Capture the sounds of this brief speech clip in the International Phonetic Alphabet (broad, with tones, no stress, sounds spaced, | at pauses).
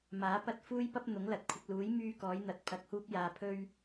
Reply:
m aː˨˥ p ɐ˥ t̚ f uː˥ j p ɐ˥ p̚ n̪ ʊ˨˥ ŋ l ɐ˨ t̚ kʷʰ ɪ˨ k̚ l uː˨˥ j m yː˧ k ɔː˨˥ j n̪ ɐ˨ t̚ pʰ ɐ˨ k̚ h uː˧ p̚ j aː˨ pʰ ɵ˧ ɥ